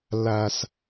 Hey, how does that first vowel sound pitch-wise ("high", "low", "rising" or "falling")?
low